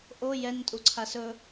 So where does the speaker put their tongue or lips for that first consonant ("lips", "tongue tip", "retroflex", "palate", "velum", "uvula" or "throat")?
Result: throat